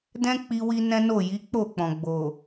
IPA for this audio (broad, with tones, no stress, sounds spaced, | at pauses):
d ɛ̃˦ k͡p i˧ w i˧ n ɛ̃˦ n o˦˨ j i˨˦ k͡p o˦˨ k͡p ɔ̃˨ ɡ͡b o˨